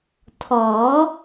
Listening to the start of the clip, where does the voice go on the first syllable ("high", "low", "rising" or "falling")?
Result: rising